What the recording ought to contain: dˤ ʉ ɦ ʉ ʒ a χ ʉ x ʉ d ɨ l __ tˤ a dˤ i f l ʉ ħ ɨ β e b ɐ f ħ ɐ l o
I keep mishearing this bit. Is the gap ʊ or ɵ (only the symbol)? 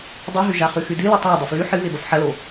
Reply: ɵ